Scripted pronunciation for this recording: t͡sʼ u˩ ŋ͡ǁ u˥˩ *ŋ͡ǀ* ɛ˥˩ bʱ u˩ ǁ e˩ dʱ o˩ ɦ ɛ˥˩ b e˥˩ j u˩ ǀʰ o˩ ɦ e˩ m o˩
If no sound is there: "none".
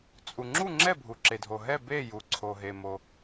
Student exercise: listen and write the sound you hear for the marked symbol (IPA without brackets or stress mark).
ŋ͡ǁ